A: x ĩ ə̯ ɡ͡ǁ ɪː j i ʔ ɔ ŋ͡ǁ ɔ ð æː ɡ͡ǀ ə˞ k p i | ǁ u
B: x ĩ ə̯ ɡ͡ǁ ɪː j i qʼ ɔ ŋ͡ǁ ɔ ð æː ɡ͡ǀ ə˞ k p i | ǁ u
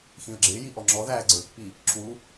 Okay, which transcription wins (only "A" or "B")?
A